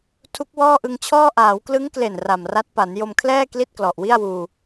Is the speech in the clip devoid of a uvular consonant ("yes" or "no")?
yes